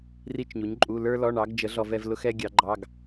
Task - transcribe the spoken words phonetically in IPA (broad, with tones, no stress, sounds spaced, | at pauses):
r i˥ t͡ʃ ɲ u˨˥ ɲ ǃʼ u˧˥˧ l ə˞˥ l ɔ˧˥˧ ɳ ɑ˨˥ ɡ d͡ʒ ə˨˥ ɮ ɔ˥ v ɛ˥ v l ʊ˥ x ɛ˥ ɡʲ ɑ˨˥ ɡ͡ǃ ɑ˧˥˧ ɡ